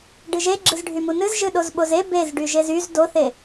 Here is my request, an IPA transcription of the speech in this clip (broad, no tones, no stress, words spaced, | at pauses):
ɖɨʒe ɡ͡ǁɨzɖʱymunɨz ʒɨɗozɓoze bez ɖyʒezyz doθe